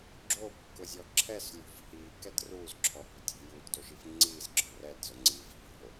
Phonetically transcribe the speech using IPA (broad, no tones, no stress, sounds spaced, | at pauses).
ɡ͡ǁ o p ṳ k ʊ zʲ ɔ ǁʰ ɛ s lʲ o̤ v h i k ɛ d r uː z ǁʰ ɔ h o̤ tʲ e̤ j uː t d o ʃ i f ŋ͡ǀ iː z ǁ ɔ̤ r ɛ d z ʊ ŋ͡ǀ iː v h e̤ o̯